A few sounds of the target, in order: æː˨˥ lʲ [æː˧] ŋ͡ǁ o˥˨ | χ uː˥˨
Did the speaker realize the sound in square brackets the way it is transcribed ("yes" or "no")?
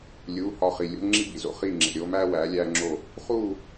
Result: no